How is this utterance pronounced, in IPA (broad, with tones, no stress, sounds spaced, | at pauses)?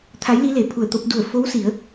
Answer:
t̪ʰ a˧˥ j l i˧˥ l e˩ pʰ u˧˩ ə̯ t̪ o˧ p̚ d u˧˩ ə̯ f o˧˥ w s i˩˧ ə̯